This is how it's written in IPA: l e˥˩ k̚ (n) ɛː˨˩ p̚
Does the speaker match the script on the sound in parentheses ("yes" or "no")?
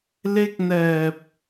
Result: yes